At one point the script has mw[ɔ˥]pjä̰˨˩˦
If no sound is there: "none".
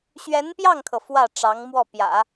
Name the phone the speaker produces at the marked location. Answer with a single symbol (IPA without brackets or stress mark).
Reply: ɔ˥˩